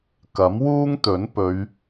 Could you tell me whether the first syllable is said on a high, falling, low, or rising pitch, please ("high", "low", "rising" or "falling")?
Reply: rising